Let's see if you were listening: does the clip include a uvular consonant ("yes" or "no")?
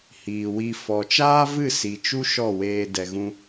no